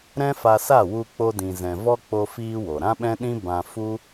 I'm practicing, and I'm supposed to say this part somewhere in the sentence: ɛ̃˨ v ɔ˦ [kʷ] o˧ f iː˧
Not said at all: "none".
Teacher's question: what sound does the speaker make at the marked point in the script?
k͡p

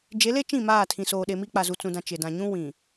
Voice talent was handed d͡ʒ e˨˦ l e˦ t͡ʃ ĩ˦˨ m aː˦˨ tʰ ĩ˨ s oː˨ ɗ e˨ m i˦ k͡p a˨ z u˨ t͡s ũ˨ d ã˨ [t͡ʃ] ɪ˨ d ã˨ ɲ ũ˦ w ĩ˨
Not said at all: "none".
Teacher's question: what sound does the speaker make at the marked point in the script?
t͡ʃ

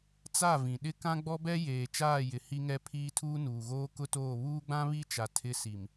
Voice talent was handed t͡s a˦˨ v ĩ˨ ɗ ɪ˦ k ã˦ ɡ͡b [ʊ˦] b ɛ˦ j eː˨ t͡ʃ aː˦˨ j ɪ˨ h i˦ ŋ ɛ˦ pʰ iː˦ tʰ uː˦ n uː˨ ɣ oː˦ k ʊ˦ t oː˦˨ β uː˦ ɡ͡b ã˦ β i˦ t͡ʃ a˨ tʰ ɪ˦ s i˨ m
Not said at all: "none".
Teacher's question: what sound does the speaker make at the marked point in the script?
ɔ˦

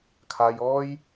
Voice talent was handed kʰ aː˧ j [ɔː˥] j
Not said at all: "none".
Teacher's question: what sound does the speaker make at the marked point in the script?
ɔː˥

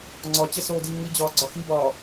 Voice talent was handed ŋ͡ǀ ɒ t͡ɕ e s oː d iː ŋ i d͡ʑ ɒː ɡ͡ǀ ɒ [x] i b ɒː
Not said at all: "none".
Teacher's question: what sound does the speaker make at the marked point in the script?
x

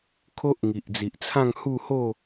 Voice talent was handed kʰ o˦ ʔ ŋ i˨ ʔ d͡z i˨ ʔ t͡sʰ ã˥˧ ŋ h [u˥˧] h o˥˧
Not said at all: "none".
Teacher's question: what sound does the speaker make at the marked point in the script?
u˥˧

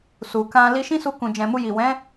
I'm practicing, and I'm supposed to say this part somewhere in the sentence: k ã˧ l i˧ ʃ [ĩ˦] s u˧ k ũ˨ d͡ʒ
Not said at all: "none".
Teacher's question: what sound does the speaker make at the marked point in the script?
ĩ˦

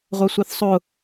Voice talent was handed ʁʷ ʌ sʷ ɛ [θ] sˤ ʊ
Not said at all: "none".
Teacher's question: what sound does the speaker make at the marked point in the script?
θ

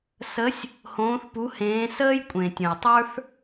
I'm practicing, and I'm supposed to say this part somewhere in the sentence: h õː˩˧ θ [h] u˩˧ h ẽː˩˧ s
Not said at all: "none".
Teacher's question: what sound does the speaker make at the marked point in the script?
p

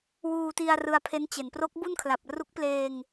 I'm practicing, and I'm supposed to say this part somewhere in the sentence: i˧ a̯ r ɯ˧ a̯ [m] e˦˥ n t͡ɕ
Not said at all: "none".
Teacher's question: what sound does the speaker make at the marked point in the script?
pʰ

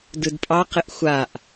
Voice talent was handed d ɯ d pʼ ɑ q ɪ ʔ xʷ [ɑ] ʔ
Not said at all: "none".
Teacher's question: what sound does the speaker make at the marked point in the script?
a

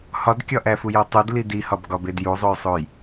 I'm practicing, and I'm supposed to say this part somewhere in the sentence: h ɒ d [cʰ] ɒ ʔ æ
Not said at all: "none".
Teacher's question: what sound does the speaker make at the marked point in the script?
kʲ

